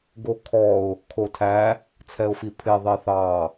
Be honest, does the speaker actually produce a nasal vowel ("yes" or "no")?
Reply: no